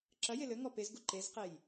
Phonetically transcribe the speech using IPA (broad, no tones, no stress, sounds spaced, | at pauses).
ǁ ɐ j e l ɘ ŋ ɔ p e z ɡ u ǃ e z q e j